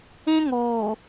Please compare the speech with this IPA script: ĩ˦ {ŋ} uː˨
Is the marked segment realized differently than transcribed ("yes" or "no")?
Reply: no